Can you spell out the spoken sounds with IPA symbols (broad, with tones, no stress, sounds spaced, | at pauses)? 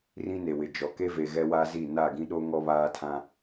r ĩ˦ n e˨ w ɪ˨ d͡ʒ ɔ˨ k e˦ v e˨ ɣ ɛ˦ w a˦ z i˦˨ n a˦˨ ɡ ĩ˦ ɗ o˦ ŋ ɔ˦ β aː˦ tʰ ã˦